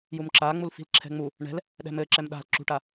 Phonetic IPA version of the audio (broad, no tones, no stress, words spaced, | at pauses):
jumǁa ŋ͡mulfi̤lǁʰɛ̤ŋ͡mu | ɳɛ̤l | ɗɛ̤mɘǁɛm ɗa̤l ǁṳʈa